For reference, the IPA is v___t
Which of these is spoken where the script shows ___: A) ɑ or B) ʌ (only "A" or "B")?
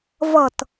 B